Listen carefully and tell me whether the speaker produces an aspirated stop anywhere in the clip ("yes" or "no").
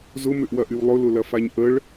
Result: no